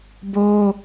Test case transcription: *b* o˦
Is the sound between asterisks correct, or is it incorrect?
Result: correct